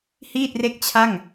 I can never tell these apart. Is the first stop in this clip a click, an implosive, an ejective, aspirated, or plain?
plain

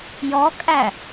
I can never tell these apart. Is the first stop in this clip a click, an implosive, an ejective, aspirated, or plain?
ejective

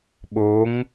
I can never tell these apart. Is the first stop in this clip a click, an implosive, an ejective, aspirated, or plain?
implosive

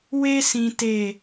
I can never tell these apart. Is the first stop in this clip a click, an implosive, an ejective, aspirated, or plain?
plain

